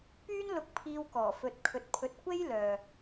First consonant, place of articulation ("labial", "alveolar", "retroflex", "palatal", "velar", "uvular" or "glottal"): labial